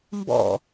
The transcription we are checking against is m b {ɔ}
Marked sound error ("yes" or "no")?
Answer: yes